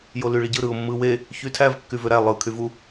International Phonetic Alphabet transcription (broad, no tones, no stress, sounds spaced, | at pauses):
j o l y ɭ i ɟ ɯ ɾ ɯ ʊ̯ mː ɯ w e | ç y tʰ æ v kː y v ø ɾ æ lˠ ɯ kʰ y v u